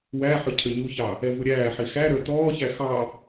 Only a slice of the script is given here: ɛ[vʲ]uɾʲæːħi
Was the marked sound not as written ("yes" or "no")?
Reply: yes